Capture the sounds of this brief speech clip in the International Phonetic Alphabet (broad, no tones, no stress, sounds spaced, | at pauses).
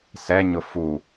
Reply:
s ɛ ɲ ʊ f u